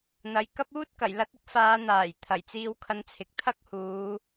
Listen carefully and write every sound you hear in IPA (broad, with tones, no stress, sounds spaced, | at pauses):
n̪ ɐ˨ j k ɐ˥ p̚ uː˥ t̚ k ɐ˨˩ j l ɐ˧ t̚ ɪ˥ k̚ f aː˨˧ n̪ aː˨˩ j t̪ʰ ɐ˨˩ j t͡s iː˧ w kʰ ɐ˧ n t͡sʰ ɪ˨ k̚ t̪ʰ ɐ˥ k̚ h uː˨˧